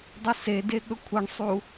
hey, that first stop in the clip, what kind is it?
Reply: plain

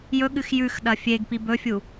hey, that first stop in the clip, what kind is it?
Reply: implosive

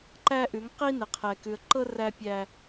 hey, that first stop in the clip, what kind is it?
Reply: click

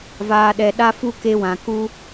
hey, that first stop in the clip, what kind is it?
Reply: implosive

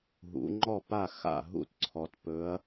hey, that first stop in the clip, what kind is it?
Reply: click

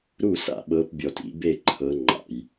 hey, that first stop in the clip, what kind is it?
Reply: implosive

